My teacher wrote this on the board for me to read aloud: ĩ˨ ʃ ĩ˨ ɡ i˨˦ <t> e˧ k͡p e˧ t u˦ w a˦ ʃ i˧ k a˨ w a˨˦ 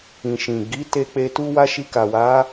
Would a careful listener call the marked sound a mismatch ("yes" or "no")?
no